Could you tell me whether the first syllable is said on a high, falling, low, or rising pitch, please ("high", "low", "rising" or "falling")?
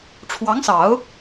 rising